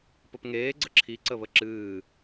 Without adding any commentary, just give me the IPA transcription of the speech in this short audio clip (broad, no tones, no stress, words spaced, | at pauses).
pəpŋeː ɡ͡ǀəǁʰi ǀəβəǁɨː